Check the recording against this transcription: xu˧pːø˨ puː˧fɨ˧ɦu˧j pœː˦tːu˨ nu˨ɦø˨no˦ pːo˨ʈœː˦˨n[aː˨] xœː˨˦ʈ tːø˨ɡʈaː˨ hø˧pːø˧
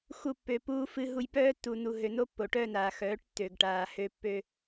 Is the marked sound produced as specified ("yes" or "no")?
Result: yes